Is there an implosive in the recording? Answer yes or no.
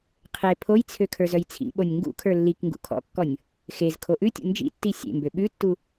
yes